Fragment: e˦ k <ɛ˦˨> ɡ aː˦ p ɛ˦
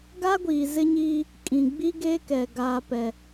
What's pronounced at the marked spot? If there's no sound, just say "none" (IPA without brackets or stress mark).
ɛ˨